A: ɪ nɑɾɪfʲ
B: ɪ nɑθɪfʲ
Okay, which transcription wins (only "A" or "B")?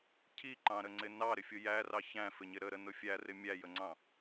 A